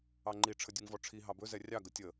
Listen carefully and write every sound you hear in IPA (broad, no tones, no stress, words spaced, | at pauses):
ɑŋ͡ǃi ʈ͡ʂʰədʲʉŋvɔʈ͡ʂʰi ɦɑbɵ zɛrʲɑ ɡətʲə